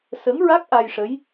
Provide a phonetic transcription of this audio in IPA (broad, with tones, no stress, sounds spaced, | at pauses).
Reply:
s ə˧˥ ŋ ɹ a˦˥ k̚ ʔ a˧ j ʂ ə˧˥ j